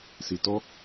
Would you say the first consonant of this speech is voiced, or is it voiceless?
voiceless